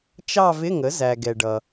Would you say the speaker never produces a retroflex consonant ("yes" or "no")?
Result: no